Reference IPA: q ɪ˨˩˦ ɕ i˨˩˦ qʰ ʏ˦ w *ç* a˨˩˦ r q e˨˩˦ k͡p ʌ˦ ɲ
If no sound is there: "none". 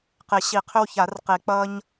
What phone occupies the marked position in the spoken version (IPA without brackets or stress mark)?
ç